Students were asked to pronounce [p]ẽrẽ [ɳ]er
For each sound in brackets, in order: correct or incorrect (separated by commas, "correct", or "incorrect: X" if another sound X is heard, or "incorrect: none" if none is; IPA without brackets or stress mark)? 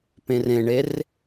correct, correct